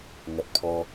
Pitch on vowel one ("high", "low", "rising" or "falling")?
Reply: low